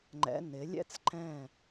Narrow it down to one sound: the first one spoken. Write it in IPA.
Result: ŋ͡ǃ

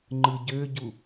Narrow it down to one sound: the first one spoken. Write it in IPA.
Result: ŋ͡ǃ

